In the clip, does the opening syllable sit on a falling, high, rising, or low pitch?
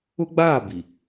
high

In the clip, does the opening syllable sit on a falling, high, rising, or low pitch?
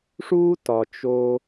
high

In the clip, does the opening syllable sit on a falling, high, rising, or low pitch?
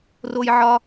high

